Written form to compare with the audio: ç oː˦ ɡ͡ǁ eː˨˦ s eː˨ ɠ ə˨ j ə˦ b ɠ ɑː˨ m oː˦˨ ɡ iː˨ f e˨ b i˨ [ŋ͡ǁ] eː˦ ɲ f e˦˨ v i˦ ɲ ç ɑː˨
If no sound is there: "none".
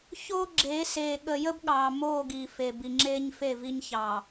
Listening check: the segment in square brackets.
ŋ͡ǁ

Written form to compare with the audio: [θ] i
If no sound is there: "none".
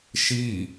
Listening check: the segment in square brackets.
ʃ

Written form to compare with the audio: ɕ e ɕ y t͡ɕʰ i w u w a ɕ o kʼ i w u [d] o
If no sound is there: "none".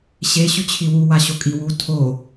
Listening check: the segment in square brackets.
tʰ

